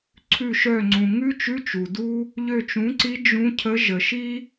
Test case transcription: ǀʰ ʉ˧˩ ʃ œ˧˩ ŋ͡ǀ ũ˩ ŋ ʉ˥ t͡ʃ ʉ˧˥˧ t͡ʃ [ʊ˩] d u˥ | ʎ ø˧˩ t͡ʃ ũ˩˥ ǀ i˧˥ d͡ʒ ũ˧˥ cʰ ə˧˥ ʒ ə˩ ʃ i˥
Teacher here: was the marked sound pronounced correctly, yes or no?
no